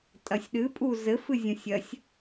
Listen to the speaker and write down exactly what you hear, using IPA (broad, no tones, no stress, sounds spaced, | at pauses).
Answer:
tʼ ɐ sʲ ɗ ɨ pʼ u z ɘ f ɨ zʲ õ sʲ ɐ sʲ